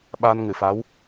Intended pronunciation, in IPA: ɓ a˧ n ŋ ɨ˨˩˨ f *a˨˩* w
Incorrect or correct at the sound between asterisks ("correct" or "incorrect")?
incorrect